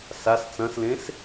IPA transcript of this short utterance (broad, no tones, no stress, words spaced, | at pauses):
sas t͡sɐ̃slẽs